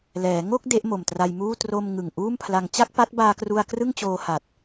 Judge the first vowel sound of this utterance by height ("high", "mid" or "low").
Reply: mid